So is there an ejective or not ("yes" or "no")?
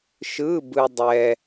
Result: no